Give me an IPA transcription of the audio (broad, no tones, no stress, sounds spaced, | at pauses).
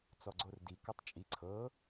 t͡s ɔ ɡ͡ǀ o r d i k ɔ tˤ t͡ʃʼ i ǀʰ ɤ